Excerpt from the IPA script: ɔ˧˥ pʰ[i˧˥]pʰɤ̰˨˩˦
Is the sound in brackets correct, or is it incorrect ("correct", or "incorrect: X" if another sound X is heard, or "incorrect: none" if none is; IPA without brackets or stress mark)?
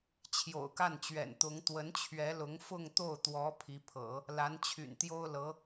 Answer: correct